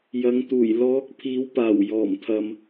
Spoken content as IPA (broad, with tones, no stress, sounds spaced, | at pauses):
j ɐ˨˧ ŋ t̪ uː˨˩ j l ɔː˨˥ k̚ pʰ iː˨˥ w p aː˨˩ w j ɔː˨˩ m t̪ʰ ɐ˨ m